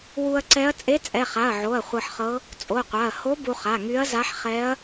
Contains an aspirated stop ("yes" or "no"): no